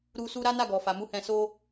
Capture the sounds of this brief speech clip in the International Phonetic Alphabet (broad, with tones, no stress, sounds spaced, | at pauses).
ɾ u˧ s u˦ ɾ a˦ n a˦˨ ɡ ɔ˨ f a˨ m u˨˦ h ɛ̃˧ s o˦